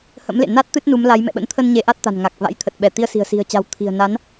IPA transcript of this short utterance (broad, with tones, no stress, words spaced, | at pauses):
hə̰˧˥mlḛ˧˨na˦˥t̚ t̪ɨ˦˥t̚nu˨˦mla˨˦j mɛ̰˧˨ɓə̰˧˥nt̪ʰə˧n ɲe˨˦ʔa˦˥t̚t̪a̤˨˩n ŋa˨˩k̚ va̰˧˥jt̪ʰə˨˩t̚ɓɛ˧˩ t̪i˧ə̯si̤˨˩ə̯si̤˨˩ə̯t͡ɕa̤˨˩w t̪ʰi̤˨˩ə̯na˨˦n